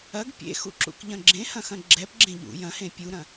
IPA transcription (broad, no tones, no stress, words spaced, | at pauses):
ɐɡ pʲḛxṵ ǁṵkʎɐ̃ɡ͡ǁẽ hɐ̃xɐ̃ɡ͡ǁɛp ɡ͡ǁẽʎṵ jɐ̃hẽ pʲuɾɐ̃